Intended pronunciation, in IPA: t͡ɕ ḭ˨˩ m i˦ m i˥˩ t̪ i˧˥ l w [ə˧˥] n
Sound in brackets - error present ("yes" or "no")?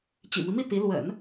yes